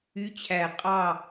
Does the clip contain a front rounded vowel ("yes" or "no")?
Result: yes